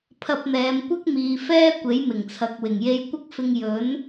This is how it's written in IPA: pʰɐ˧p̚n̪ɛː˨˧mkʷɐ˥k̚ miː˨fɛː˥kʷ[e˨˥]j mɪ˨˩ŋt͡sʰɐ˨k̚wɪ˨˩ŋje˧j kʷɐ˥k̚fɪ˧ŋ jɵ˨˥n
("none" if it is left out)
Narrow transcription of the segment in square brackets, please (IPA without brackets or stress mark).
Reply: e˨˥